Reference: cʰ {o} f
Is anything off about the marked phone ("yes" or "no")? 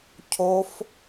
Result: no